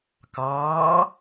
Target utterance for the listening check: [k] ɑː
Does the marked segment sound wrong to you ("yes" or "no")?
no